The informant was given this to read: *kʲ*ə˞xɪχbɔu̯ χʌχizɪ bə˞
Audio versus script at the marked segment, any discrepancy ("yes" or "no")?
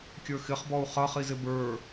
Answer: no